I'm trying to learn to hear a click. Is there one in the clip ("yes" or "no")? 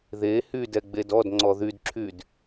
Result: yes